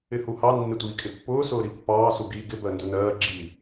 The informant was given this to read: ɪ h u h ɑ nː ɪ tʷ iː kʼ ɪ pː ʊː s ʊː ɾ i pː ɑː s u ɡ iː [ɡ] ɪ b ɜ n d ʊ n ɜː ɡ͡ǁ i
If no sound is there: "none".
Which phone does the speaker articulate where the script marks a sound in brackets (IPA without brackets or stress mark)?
ɡ